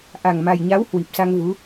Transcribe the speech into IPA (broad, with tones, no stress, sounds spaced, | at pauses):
ʔ a˨˩ ŋ m a˨˩ j ɲ a˨˦ w h w i˨˩ p̚ s a˧ ŋ v u˨˦